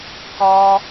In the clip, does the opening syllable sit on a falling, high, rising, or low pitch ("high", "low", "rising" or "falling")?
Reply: high